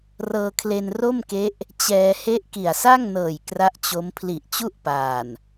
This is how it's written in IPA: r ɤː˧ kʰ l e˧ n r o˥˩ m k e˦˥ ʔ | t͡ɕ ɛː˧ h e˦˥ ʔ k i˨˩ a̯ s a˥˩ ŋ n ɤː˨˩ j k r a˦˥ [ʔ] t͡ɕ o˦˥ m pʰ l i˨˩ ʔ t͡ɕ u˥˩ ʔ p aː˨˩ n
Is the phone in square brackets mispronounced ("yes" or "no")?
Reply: no